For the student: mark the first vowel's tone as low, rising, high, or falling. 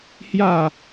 falling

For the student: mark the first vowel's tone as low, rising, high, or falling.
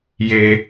low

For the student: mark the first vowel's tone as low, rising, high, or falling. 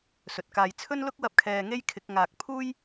low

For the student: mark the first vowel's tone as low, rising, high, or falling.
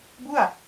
falling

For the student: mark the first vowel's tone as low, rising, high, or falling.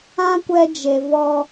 high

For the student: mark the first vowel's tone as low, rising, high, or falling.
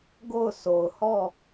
falling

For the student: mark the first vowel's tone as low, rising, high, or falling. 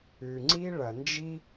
low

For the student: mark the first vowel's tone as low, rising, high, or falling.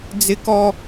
high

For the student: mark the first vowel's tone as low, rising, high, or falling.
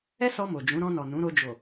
high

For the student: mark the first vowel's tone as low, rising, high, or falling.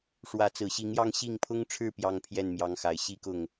rising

